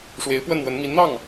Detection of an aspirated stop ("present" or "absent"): absent